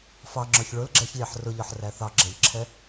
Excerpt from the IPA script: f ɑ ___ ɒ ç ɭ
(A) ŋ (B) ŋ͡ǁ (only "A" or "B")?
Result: B